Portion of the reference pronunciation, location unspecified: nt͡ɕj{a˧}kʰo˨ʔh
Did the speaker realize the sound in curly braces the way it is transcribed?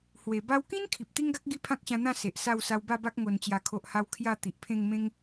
no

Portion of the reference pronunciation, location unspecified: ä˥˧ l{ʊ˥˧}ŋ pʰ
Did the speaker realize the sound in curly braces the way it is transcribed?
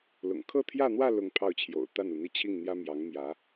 yes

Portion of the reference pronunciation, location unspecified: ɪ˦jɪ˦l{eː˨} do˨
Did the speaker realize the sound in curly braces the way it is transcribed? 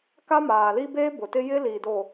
no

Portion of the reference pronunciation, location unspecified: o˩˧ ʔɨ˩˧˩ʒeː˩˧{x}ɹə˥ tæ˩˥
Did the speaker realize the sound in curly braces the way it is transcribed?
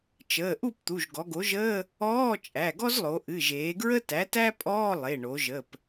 no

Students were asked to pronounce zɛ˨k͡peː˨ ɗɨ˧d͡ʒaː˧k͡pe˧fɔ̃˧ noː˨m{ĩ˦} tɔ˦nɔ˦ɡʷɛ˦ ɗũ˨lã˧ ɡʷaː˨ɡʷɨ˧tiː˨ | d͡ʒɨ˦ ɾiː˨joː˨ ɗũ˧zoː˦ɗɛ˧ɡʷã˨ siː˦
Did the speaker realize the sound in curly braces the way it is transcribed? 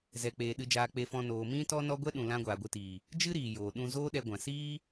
yes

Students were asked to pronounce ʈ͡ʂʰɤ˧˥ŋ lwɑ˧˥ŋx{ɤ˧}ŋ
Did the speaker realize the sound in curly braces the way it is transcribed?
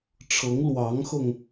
yes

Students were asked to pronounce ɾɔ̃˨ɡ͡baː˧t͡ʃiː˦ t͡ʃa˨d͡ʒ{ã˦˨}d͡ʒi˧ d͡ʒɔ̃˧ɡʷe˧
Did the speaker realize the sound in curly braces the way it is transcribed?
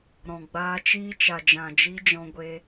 no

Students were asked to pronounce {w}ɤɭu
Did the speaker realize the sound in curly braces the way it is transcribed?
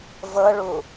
no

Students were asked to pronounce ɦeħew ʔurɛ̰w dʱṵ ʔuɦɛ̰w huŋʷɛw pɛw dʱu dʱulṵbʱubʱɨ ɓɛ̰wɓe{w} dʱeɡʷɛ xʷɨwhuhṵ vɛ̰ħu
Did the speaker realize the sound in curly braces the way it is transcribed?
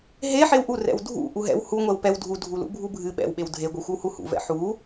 yes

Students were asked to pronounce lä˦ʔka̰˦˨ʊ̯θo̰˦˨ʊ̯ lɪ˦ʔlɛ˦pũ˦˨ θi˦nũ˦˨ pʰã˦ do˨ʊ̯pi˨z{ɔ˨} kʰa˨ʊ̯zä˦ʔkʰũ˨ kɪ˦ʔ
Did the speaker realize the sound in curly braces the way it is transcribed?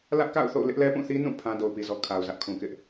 yes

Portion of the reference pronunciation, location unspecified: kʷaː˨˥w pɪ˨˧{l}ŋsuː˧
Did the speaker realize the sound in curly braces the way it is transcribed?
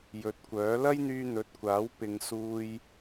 no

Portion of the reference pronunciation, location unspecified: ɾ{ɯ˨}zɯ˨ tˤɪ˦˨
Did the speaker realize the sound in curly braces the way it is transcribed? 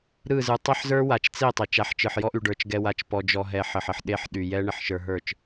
no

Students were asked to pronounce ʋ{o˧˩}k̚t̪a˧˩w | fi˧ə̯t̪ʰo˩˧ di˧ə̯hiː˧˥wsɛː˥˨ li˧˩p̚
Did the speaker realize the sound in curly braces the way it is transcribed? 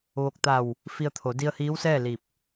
yes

